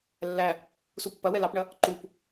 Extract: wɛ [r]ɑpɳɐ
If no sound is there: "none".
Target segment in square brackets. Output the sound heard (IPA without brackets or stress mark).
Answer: l